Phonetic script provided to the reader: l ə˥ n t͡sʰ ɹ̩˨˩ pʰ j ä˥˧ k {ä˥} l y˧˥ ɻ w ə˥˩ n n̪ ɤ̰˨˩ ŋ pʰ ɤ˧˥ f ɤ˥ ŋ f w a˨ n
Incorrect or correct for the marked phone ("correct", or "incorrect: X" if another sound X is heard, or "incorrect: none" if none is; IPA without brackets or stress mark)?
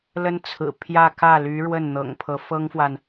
incorrect: ä˥˩